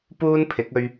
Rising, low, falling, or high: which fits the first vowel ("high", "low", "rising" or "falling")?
high